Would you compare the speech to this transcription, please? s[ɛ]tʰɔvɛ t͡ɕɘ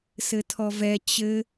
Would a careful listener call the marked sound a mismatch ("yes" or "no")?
yes